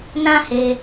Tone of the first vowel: high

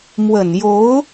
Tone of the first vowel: low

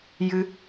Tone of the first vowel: high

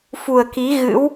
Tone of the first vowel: low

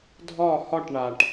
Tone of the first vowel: falling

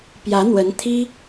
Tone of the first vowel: rising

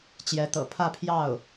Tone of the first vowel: rising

